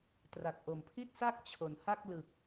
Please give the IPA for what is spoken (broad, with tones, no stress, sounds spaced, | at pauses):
t r a˨˩ k̚ ʔ o˨˩ m pʰ i˥˩ t̚ s a˥˩ k̚ t͡ɕʰ o˩˦ n h a˥˩ k̚ l ɯ˨˩ k̚